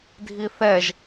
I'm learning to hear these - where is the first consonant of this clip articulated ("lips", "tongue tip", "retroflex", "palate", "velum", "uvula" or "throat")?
tongue tip